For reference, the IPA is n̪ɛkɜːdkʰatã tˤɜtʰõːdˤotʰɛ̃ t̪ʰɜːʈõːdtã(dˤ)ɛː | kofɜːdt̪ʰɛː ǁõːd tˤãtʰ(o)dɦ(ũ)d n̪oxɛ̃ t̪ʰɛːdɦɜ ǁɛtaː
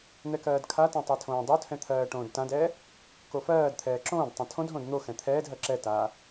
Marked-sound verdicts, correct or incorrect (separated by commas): incorrect, incorrect, incorrect